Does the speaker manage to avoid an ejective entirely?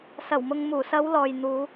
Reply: yes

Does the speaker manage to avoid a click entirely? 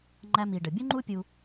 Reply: no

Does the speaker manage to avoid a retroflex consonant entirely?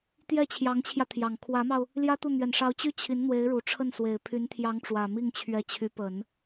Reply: no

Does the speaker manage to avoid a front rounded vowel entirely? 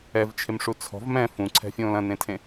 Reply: yes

